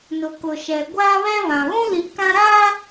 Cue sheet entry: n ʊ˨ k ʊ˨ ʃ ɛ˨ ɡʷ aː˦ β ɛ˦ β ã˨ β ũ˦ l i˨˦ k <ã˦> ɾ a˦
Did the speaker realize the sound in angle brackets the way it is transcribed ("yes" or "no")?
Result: yes